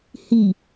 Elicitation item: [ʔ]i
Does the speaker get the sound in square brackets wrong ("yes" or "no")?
yes